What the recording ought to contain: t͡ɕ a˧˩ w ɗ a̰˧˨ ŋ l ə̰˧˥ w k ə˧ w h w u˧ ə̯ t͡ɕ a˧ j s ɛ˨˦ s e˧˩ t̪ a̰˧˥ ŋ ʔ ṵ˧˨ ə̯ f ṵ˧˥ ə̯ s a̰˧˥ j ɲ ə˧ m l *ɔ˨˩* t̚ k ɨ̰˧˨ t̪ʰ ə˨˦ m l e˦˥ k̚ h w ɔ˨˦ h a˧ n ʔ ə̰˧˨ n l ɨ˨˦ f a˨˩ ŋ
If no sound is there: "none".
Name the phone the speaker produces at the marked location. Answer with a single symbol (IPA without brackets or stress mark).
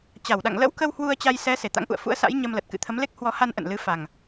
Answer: ə˨˩